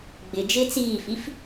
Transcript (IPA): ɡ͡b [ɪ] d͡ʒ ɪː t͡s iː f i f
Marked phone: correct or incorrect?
correct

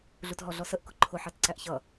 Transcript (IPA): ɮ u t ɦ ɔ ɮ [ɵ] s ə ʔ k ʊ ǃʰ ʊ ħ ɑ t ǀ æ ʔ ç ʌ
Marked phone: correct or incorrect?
incorrect: ɔ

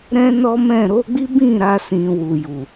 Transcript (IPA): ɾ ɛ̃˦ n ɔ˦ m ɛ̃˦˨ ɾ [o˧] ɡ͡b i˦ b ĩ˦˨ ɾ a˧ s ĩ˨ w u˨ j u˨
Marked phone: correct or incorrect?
incorrect: o˨˦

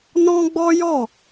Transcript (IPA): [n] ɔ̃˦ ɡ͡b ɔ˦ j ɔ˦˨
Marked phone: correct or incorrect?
correct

